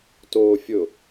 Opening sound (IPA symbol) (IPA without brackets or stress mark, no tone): t